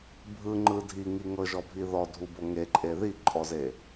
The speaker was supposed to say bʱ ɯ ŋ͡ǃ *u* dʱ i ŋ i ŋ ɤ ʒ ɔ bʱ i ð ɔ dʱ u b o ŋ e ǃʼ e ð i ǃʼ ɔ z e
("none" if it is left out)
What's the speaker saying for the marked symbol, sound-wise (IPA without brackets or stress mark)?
ɯ